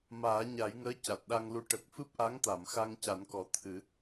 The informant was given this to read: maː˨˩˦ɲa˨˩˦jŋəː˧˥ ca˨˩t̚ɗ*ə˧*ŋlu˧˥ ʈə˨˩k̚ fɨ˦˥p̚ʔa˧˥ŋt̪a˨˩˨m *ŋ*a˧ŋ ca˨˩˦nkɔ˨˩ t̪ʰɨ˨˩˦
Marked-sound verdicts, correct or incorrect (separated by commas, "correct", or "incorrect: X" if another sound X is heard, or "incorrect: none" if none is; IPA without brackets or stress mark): incorrect: a˧, incorrect: x